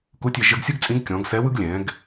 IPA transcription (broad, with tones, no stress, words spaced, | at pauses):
ku˧˥tʲe˧ ʒɘ˧ɡ sʲu˥ɡt͡sʼĩ˧˥ɡkʲɔ̃˩˧ɡsɛ˧˥ wɯ˥ɡ lʲɛ̃˩˧ɡ